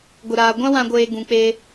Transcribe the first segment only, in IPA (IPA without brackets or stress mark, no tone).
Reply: ɡʷ